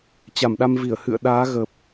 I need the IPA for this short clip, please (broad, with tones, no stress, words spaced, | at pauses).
t͡ɕa˧˩mɗa˧mvi˧˩ə̯ hɨ̰˧˨ə̯ ɗaː˨˦ɣə˨˩p̚